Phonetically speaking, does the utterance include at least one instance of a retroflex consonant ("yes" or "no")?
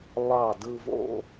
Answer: no